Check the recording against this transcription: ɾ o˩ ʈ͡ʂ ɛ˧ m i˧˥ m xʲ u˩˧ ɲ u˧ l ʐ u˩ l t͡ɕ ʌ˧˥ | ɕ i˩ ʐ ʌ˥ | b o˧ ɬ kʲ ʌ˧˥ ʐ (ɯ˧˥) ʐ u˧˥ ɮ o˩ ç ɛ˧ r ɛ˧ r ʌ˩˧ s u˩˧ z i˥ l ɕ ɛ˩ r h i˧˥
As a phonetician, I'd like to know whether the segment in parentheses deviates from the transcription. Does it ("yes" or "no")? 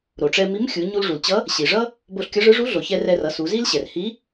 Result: no